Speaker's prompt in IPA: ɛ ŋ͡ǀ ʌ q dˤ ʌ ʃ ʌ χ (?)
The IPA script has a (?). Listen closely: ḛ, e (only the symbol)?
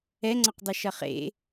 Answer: ḛ